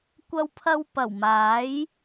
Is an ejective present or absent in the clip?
absent